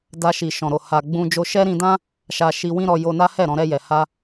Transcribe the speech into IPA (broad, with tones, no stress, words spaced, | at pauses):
da˧ʃi˨ʃɔ̃˨ ɾo˨ ha˨ɡ͡bũ˧ d͡ʒo˧ʃɛ˦ɾĩ˧dã˦ | ʃa˧ʃi˧wĩ˦ɾɔ˧ jo˧na˦hɛ˦˨ ɾɔ̃˧ɾɛ˧jɛ˨ ha˧